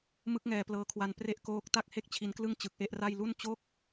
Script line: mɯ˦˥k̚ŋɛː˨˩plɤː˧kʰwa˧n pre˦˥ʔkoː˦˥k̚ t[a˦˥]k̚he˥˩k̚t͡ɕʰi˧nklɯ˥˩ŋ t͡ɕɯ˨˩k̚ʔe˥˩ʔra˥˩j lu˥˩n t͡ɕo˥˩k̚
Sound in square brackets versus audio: incorrect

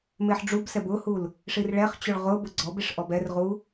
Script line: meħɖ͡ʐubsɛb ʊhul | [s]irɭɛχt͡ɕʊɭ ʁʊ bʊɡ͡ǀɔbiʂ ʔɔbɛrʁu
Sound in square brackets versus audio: incorrect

